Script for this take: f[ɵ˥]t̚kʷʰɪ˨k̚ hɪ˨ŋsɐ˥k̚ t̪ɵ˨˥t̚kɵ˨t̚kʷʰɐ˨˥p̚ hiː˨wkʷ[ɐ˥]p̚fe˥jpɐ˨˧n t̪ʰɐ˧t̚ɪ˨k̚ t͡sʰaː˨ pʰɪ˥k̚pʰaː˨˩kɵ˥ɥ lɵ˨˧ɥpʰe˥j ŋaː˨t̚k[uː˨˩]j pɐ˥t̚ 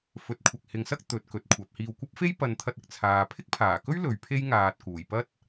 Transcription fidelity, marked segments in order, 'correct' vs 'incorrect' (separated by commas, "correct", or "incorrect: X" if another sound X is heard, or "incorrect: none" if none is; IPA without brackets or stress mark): incorrect: ɵ˨˥, correct, correct